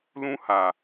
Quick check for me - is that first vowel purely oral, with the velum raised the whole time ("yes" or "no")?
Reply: no